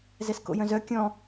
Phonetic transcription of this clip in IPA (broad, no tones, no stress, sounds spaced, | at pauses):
z ɛ s k o̰ j œ̃ z œ kʲ ɔ̃